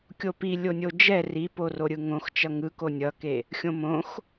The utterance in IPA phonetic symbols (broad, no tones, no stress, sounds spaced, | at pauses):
kʲ o p i lʲ o nʲ o d͡ʒ ɛ r i p o r o ɾʲ ɯ ŋ õ x t͡ʃ ʌ ŋ ɯ k o nʲ ʌ k e | xʲ õ m õ x